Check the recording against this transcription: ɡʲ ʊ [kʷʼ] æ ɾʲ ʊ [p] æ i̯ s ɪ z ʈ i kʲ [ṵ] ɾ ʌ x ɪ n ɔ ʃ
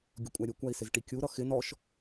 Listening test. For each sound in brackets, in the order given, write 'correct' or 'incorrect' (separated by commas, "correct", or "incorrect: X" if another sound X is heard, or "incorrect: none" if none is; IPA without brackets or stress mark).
correct, incorrect: kʷ, incorrect: u